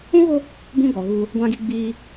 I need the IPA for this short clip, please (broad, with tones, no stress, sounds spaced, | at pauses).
ũ˦ ɣ o˦ | b ũ˦ ɡ ɔ˨ ɣ uː˦ | ɡʷ ã˦ ɡ i˦ ɡ͡b iː˦